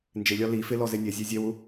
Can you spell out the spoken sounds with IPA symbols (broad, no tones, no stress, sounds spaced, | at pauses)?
n d͡ʒ ɪ lʲ ɒ l i f ɪ l ɔ z e nʲ e zʲ e zʲ e w u